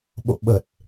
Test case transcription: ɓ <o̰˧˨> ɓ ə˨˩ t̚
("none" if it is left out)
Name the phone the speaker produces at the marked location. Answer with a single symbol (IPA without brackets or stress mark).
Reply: o̰˧˨